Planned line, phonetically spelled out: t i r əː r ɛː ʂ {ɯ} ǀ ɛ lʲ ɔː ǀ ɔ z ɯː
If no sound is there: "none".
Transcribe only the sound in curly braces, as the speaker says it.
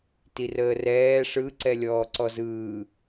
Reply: ɯ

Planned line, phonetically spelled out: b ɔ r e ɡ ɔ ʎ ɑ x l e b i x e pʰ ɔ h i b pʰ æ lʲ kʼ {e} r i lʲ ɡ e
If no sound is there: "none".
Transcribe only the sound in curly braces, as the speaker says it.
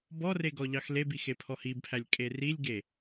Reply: e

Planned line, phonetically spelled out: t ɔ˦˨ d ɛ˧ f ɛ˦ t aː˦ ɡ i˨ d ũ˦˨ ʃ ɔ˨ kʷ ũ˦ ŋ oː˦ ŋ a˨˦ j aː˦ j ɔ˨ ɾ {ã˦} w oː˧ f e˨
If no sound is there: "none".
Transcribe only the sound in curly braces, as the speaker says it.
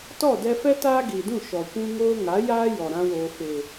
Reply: ã˦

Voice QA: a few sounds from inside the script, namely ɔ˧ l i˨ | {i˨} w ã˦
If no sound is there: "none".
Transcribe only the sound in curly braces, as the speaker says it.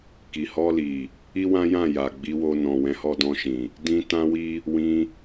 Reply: i˦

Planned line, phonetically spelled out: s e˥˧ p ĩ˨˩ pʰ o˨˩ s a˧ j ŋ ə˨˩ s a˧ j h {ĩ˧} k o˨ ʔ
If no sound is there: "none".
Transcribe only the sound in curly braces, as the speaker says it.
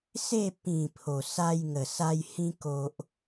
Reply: ĩ˧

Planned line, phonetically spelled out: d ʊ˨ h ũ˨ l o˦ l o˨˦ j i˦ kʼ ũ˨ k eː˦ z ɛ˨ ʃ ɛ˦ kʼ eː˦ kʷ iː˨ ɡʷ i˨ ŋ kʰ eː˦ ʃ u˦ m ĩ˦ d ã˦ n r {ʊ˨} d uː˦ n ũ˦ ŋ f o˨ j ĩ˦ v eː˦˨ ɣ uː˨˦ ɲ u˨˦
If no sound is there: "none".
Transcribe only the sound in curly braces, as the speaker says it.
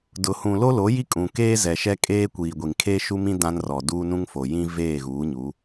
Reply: ɔ˨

